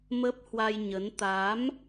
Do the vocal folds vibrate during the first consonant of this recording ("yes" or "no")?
yes